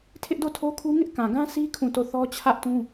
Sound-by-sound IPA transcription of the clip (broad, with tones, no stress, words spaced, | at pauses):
tʰɪ˦ʔdo˦˨tʰo˦kʰu˦ ŋɪ˦ʔ kã˨ɡã˦sʰi˦ kʰũ˦˨to˦˨ θɔ˦t͡ɕʰä˦ʔtũ˦